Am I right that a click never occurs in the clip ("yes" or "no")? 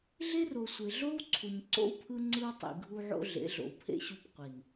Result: no